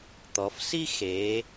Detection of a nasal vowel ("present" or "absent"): absent